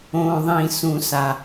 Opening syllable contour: low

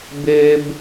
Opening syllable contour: high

